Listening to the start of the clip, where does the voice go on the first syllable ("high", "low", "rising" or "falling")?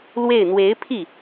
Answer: falling